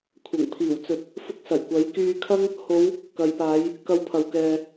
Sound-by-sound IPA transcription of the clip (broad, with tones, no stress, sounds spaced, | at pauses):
kʷʰ ɐ˨˩ ŋ pʰ iː˨˩ w t͡s ɵ˨ t̚ | f ʊ˧ k̚ s ɐ˨˩ j kʷ ɐ˨˥ j k yː˧ kʰ ɐ˥ ŋ | h o˨˧ w | k ɐ˨ j p aː˨˧ j | k ɐ˧ w pʰ ɐ˨ w k ɛː˨